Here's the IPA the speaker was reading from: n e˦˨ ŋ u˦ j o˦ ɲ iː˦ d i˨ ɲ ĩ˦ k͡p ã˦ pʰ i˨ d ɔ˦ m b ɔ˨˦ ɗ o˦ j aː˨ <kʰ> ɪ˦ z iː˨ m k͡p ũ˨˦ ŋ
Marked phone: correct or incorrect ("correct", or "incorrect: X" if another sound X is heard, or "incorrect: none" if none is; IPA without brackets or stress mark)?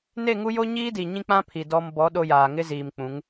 incorrect: ŋ